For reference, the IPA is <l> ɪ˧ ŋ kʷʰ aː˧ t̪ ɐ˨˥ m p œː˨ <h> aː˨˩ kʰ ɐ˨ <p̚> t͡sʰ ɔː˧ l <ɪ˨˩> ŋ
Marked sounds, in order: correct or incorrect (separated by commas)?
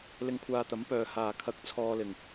correct, correct, incorrect, correct